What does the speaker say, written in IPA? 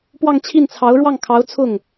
pwɑ˥˧ŋt͡ɕʰi˥˩nt͡sʰɑ˧˥ʊ̯ ɻwɑ˥˩ŋkʰɑ˧˥ʊ̯ t͡sʰʊ˥˩ŋ

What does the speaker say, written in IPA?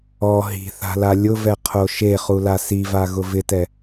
ɔ ɦi̤θa̤la lʲʊvɛqʰo ʃeχula sivaɣʊ vɪtɛ

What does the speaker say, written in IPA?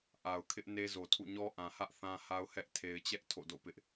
ʔa˨ʊ̯kʰɪ˦ʔ ne˦zo˨tʰṵ˦˨ ɲɔ˦ ʔã˨hä˦ʔ θã˦ha˦ʊ̯ hɛ˦ʔ tʰe˨ɪ̯t͡ɕɛ˦ʔ tʰo̰˦˨do̰˦˨pɪ˦ʔ

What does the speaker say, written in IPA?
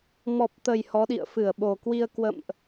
mɔ˨˩p̚t̪ə˨˩j hɔ˨˦ɗḭ˧˨ə̯ fɨ˧˩ə̯ɓo˨˩kwi˧ə̯ kwə̰˧˨mʔ

